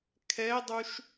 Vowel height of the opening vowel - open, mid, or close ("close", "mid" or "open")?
mid